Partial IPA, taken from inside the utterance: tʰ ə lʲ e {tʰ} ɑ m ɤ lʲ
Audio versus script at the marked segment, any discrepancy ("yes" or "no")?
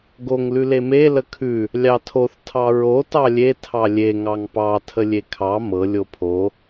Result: yes